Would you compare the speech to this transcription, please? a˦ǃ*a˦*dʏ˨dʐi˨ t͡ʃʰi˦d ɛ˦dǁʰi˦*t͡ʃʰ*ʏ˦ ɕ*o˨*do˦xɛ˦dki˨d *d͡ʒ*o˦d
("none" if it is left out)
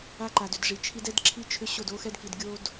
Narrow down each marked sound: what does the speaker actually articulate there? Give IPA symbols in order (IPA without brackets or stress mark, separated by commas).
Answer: a˨, t͡ʃʰ, o˦˨, ɡʲ